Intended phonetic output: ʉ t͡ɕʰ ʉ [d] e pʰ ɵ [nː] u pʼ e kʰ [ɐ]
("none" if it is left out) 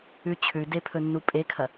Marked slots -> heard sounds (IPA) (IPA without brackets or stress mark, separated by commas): d, nː, ɐ